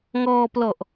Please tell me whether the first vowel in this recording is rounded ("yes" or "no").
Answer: yes